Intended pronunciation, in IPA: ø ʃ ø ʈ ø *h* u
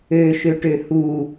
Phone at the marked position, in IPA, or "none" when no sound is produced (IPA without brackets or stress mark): h